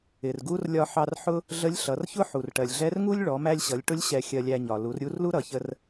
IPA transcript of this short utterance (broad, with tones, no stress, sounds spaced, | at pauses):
ɪ˩ r ɡ u˥ r lʲ ɒ˧ ħ ɑ˧ r ħ ʊ˥ | ɮ ə˧˥ lʲ ɬ ʌ˩˧ r ç ʊ˥ ħ u˩ r ʈ ɜ˩ lʲ ɮ ɛ˧˥ r ŋ u˥ lʲ ɭ ɔ˩˧ m æ˧ lʲ ɕ ʌ˩˧ lʲ ʈ ʊ˧˥ lʲ ɕ ɛ˧ xʲ ɜ˧ lʲ æ˧ ɲ ɒ˩ l u˩˧ r ɾʲ u˧˥ r l u˥ ɾ ʌ˩ ç ə˧ r